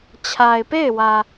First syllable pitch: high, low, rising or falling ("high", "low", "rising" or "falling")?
low